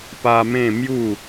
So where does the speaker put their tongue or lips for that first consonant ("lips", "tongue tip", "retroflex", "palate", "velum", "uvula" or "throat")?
lips